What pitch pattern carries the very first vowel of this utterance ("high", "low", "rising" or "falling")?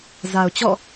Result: low